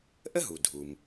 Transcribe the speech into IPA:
ʔə˥ɦu˩dʱu˩m

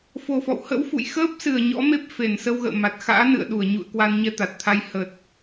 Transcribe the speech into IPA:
fo˨˩fɔ̰˧˨whə̰˧˥wfṵ˧˨j xəː˦˥p̚sɨ˧˩ə̯ ɲɔ̰˧˥me˦˥p̚fe˨˩n sə˧wɣə̰ː˧˨ma˨˩t̚ xa̰ː˧˥nɨ̰˧˨ə̯ɗu˧˩ə̯ ɲṵ˧˨ə̯ kwa˧nɲɛ˧t̪a˨˩t̚t̪ʰa˧j hə˨˩t̚

